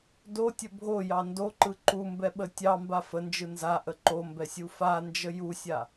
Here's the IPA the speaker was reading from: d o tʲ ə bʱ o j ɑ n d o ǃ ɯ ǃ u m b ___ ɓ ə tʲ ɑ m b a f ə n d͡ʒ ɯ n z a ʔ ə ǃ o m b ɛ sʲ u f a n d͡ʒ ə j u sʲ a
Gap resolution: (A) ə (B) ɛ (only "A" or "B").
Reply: B